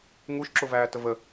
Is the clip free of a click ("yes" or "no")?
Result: no